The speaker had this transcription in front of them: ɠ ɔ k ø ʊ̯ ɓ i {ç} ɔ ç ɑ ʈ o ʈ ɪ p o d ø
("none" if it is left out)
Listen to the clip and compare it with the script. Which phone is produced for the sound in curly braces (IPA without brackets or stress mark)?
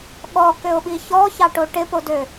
ç